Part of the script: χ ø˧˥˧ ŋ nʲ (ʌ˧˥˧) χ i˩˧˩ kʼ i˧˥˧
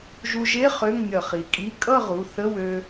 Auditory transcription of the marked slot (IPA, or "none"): ʌ˧˩˧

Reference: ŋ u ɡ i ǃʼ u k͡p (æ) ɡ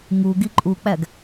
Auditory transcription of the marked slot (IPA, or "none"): æ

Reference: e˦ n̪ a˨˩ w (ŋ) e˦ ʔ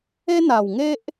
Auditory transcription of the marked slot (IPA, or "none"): ŋ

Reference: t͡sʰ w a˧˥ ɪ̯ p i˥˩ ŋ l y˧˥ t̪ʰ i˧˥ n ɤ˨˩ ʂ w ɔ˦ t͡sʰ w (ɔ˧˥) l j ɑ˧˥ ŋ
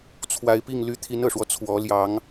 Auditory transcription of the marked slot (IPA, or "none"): ɔ˧˥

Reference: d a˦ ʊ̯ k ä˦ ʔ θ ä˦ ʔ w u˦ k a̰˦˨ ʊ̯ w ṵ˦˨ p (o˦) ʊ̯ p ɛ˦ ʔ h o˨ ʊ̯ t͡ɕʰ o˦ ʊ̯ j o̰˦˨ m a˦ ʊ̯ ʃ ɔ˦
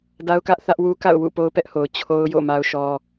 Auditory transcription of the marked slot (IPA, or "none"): o˦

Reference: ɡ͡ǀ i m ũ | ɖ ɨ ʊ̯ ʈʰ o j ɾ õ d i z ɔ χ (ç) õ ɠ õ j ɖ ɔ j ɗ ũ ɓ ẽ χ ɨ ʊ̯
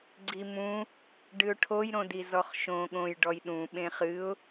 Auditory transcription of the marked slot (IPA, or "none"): ʃ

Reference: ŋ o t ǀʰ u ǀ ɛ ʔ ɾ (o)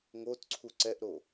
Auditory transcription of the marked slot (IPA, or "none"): o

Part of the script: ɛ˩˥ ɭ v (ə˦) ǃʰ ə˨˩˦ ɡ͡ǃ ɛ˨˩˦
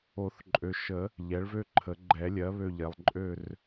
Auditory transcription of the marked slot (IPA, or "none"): ø˦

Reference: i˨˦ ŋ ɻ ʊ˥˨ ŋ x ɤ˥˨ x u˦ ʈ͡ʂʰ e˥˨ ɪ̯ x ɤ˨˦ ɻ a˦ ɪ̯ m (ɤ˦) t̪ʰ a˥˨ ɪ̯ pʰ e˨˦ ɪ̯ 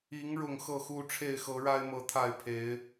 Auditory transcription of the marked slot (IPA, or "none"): ɤ˨˦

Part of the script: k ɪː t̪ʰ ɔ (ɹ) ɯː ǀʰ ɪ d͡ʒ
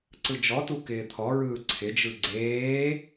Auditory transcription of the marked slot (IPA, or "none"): ɹ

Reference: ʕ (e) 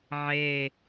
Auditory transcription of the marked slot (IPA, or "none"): e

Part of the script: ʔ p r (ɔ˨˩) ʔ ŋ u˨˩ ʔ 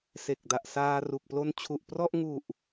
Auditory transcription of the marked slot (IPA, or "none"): ɔ˥˩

